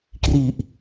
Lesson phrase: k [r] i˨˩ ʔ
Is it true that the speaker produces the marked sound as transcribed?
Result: yes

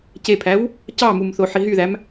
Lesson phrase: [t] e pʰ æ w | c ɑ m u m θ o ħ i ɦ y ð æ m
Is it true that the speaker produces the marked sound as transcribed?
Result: no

